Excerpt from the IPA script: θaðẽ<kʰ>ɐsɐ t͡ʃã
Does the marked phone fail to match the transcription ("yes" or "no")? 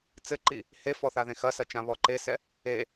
yes